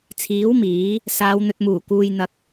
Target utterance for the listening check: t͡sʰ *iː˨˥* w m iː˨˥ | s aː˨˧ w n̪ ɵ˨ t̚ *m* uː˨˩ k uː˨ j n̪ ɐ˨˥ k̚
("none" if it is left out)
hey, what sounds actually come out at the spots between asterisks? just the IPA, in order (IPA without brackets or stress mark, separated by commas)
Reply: iː˨˥, m